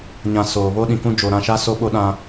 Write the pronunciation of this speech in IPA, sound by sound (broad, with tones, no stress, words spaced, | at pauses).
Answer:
ɲã˨ soː˨ βo˦ɗĩ˨kũ˦ d͡ʒo˨ ɾã˦˨ʃa˦ so˦ɓo˦ ɗã˦